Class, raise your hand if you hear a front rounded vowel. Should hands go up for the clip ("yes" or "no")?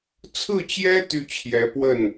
yes